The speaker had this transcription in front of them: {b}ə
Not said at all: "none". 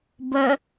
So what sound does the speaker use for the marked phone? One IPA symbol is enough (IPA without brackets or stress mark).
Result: b